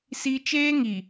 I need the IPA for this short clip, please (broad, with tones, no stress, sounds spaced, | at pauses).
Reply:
s i˦ t͡ʃ eː˦ ŋ i˨